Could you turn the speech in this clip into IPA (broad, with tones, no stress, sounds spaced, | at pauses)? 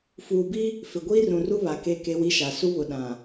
f uː˨ b i˦ | f ɪ˨ ɡʷ iː˦ r ũ˨ r u˦ β a˨ k e˦˨ k e˦ w i˦ ʃ a˨ s u˦ β ʊ˨ ɗ ã˨